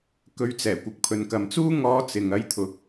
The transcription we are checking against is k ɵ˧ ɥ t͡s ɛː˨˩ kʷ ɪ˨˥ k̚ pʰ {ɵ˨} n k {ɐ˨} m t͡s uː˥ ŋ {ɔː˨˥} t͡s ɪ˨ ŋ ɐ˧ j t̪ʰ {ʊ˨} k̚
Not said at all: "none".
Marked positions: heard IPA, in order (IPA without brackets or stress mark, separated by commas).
ɵ˨, ɐ˨, ɔː˧, ʊ˨